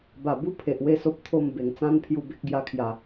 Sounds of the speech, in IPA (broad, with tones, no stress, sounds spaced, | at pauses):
b a˨˩ b u˦ pʰ e˨ ʔ w e˦ s o˦ p̚ t̪ʰ o˥˧ m b e˨˩ ŋ t͡s ã˦ n pʰ j u˧ b e˦ k̚ ɡ j a˧ kʰ j a˨˩